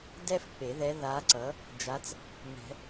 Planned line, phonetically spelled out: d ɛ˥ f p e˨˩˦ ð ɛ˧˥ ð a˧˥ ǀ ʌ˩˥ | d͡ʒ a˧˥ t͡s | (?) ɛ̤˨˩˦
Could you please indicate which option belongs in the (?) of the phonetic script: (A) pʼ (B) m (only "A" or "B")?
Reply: B